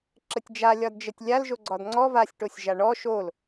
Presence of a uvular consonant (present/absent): absent